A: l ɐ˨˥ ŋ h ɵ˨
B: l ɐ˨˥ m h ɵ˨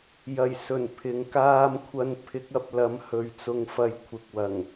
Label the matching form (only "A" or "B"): B